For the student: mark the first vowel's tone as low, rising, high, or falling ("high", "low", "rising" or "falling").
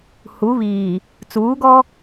rising